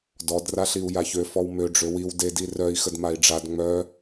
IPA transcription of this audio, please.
d ɔ d r a ɬ i u̯ j a ç ø f ɔ w m ø ɖ͡ʐ ø w i w d e d i r œ i̯ x ə d m a i̯ ɖ͡ʐ a d ŋ͡m œ

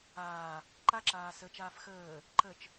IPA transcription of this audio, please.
aː | ǃ a ǁ aː s ə t͡ʃ aː f x əː | ǃ ə t͡ʃ

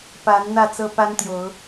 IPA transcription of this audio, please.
p a˨˦ n n̪ ä˥˨ t͡s ɤ˦ p a˦ n t̪ j o˨˦ ʊ̯

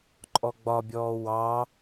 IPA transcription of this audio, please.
ǃʼ ɔ ɡ͡b ɒ bʲ ɔː w ɑ

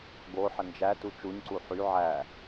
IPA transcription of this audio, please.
ɡ o ħ ə n d͡ʒ æ t u t͡ʃ u ɲ ǀ u ħ y ʕ æ

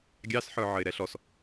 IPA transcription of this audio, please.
ɡʲ ɑ s ħ ə˞ ʕ ə ɪ̯ ɾ ɛ ɬ ɔ s

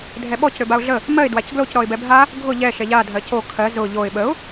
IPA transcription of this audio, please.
dʱ ɛ ɓ ɔ c ɾ ø b a ʊ̯ ɮ ə | m ɜ ɪ̯ d w a c ɡ l o c ɾ ɔ ɪ̯ b ɛ bʱ a | ɡʱ ʊ ʎ ɛ ʃ ɛ ʎ a dʱ ɜ c o kʰ ɜ z ʊ ʎ o ɪ̯ ɓ ə ʊ̯

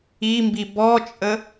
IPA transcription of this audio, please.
i m b i b ɔ t͡ʃʼ ə

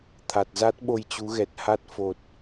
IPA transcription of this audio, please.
t̪ʰ a˨˩ t̚ z a˦˥ t̚ ɓ o˧ j t͡ɕ u˨˦ ɣ ɛ˨˩ t̚ h a˦˥ t̚ f o˨˩ t̚

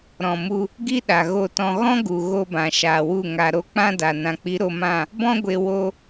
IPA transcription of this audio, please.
ɾ ɔ̃˨ m u˧ | ɡ i˦ ɗ a˨ ɣ o˨ t ɔ̃˨ ɣ ɔ̃˦ ɡ u˨ ɣ o˧ b ã˨ ʃ aː˨ w u˦˨ ŋ a˨ ɾ o˧ k͡p ã˦ d a˨ n ã˨ k͡p i˨˦ ɾ o˧ m ã˦˨ | b ɔ̃˦ ɡʷ e˧ w o˧

